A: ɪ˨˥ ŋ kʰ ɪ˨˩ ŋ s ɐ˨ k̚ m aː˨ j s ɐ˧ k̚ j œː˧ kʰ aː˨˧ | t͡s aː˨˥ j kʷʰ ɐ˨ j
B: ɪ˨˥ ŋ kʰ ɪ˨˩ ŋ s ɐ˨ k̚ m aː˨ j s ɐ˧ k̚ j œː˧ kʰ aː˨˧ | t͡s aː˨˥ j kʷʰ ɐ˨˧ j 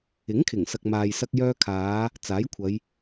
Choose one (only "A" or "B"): B